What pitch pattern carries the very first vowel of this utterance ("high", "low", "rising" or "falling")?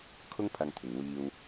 high